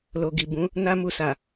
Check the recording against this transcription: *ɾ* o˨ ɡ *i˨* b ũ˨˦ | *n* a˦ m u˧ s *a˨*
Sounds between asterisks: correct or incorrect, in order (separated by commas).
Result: incorrect, correct, correct, correct